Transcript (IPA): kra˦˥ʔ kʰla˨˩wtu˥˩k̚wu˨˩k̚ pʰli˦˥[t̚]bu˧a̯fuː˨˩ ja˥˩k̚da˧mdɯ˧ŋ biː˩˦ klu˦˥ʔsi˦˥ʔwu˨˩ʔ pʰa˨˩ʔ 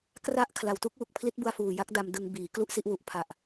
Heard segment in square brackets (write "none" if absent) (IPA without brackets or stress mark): t̚